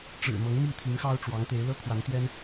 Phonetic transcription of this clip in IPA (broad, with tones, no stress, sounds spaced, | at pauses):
ʈ͡ʂ ɻ̩˨˩ m ɤ˧˥ ŋ m i˥˩ t̪ʰ i˧˥ ŋ x ɑ˥ ʊ̯ ʈ͡ʂ w ɑ˧˥ ŋ t̪ e˧˥ ɪ̯ l ɤ˥ kʰ w a˧˥ n t̪ j ɛ˥ n